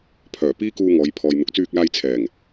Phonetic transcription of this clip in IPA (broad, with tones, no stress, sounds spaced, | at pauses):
pʰ œː˨˩ p iː˥ k uː˧ ŋ ɔː˨˧ j pʰ ɔː˨ j n̪ ʊ˨˥ k̚ t͡s yː˧ k̚ l aː˧ j t͡sʰ ɛː˨˩ ŋ